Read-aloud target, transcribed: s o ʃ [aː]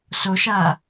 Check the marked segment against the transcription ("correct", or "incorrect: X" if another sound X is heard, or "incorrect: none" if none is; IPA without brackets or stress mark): correct